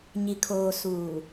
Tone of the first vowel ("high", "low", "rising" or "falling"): low